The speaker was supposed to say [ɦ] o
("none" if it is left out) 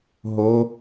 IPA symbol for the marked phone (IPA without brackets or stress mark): ɦ